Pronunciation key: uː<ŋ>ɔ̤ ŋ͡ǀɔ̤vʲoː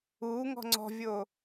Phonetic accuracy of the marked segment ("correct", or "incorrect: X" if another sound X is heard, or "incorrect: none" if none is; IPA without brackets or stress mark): correct